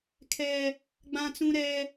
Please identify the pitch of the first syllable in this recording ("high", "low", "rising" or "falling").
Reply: high